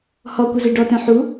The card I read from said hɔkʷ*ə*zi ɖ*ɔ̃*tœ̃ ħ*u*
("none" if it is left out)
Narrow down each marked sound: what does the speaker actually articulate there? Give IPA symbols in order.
ə, ɔ, u

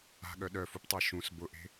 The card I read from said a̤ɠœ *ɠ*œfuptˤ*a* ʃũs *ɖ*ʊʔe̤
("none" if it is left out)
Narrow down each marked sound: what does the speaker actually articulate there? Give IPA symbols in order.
ɗ, a, b

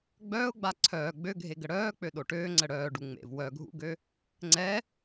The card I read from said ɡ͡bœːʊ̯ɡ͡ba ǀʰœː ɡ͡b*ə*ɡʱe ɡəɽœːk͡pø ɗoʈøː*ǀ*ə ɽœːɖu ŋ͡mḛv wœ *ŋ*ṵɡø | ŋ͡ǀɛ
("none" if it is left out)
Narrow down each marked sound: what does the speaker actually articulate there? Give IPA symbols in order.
ø, ŋ͡ǀ, ɡʱ

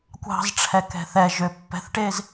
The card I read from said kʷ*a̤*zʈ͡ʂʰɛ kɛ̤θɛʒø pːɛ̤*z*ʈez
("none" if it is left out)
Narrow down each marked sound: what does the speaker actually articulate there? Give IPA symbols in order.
ɑ̤, θ

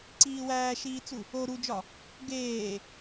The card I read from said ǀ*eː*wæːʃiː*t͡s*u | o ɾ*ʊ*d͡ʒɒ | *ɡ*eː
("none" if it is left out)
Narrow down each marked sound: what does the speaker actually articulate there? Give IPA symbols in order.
iː, t͡s, u, ɡ

